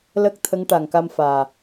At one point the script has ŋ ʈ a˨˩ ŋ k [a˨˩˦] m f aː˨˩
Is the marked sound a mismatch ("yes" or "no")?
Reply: yes